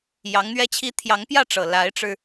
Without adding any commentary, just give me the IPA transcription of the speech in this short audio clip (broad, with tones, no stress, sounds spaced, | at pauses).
j ɑ˧˥ ŋ n̪ ɥ ɛ˥ t͡ɕʰ i˥ t̪ʰ j ɑ˧˥ ŋ p j ä˥˩ ʈ͡ʂ ɤ˨˩ l a˧˥ ɪ̯ ʈ͡ʂ ɻ̩˧